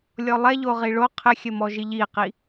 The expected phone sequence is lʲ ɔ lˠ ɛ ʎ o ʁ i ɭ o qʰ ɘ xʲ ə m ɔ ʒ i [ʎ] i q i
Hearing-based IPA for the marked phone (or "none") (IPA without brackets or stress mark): ʎ